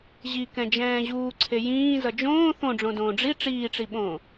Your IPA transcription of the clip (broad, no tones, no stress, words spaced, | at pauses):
ʑikɛ̃d͡ʒɛ̃ː ʑuːǀʰe jĩːzʌ d͡ʒõː θõɖ͡ʐõdõː ɖ͡ʐi ʈ͡ʂiːʈ͡ʂiɓõː